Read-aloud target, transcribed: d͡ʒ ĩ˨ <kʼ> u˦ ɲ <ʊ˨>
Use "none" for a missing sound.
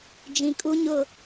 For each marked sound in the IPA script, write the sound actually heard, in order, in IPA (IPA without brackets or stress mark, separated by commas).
kʼ, ʊ˦˨